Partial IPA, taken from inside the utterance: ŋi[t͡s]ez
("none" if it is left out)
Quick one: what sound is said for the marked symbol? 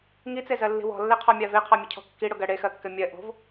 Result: t͡s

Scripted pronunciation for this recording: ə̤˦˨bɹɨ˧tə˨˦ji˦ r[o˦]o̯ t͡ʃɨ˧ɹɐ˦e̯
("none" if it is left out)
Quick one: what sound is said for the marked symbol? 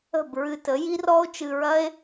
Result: ɔ˦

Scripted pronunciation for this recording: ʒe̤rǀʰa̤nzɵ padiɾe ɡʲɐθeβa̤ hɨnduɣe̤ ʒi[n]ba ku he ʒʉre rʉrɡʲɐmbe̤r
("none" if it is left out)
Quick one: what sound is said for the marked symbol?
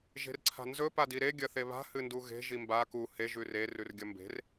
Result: m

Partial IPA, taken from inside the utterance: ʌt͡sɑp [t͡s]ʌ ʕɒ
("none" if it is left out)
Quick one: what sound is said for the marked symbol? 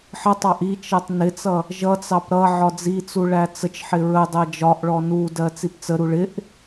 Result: ɾ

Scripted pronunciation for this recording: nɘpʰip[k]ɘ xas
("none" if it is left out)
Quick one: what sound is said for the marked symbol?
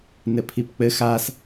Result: k͡p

